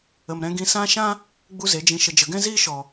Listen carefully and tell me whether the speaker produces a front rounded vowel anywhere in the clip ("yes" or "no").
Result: no